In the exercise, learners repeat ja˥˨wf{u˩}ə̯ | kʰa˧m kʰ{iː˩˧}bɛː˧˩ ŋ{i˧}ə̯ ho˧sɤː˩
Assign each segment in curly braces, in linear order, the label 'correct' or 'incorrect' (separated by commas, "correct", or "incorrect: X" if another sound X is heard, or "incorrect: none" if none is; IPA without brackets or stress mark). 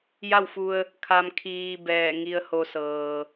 incorrect: u˧, incorrect: iː˧, correct